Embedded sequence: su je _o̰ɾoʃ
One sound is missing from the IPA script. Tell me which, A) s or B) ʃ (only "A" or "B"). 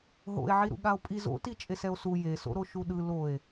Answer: A